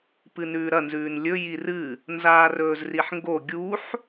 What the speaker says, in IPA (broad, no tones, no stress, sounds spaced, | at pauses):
p ɨ n ʉː ɾ ɐ n z ʉː n lʲ ɵ j i r ɨ | n z aː r ɵː z r i ħ ŋ ɡ o ɡʲ u ħ